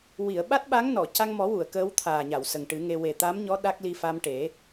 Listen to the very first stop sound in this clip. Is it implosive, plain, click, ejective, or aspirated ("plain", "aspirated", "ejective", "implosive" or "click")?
implosive